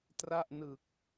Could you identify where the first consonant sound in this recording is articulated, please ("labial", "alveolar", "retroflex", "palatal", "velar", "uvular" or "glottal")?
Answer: alveolar